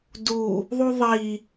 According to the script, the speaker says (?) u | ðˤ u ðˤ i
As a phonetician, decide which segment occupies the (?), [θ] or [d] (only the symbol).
d